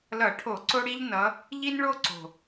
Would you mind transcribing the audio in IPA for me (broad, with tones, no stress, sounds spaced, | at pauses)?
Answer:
l ʌ˧˩˧ ʈʰ o˧˩˧ ǀ o˦ ɽ i˦ ʎ n ʌ˨˦ | ʎ i˦ n ɭ o˦ ǀ o̤˨˩